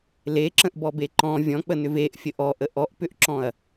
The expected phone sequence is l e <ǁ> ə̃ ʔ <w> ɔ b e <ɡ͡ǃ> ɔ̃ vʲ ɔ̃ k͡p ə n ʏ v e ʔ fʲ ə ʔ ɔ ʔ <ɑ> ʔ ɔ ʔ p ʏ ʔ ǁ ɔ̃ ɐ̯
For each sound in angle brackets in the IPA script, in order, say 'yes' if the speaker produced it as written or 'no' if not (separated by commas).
yes, no, no, no